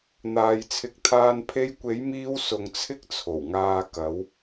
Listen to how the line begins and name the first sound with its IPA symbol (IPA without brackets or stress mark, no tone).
n̪